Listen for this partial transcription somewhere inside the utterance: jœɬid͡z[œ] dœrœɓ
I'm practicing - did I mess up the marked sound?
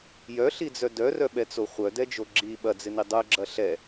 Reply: no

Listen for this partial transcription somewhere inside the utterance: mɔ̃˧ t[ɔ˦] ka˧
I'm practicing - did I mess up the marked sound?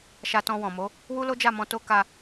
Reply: yes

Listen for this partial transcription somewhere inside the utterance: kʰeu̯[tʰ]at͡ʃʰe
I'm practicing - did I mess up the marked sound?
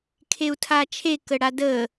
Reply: no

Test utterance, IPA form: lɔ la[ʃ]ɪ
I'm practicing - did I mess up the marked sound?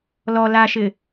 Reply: no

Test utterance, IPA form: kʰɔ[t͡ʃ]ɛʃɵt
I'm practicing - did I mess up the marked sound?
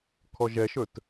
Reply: yes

